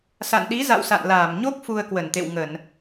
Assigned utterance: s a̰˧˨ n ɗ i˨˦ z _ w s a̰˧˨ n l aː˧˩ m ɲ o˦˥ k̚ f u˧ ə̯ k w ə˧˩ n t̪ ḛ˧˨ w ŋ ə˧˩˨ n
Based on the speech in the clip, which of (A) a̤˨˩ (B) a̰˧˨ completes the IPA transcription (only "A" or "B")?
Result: B